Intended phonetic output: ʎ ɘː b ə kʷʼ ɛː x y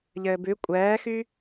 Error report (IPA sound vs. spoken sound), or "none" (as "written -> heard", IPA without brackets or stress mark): ə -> ʉ